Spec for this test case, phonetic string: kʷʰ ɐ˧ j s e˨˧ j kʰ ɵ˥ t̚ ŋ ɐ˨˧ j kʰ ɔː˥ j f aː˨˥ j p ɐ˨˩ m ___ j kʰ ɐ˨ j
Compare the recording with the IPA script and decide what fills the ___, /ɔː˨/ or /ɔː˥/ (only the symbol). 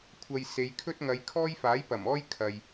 ɔː˥